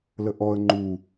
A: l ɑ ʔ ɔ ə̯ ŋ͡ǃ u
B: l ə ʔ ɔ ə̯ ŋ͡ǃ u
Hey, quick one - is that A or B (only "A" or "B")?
B